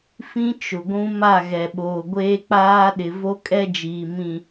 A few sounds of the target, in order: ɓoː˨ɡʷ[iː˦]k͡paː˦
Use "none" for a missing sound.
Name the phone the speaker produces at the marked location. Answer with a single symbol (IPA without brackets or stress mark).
eː˦